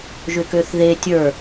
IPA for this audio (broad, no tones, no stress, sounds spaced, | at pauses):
ʒ ʏ k ø θ ð e tʲ ə˞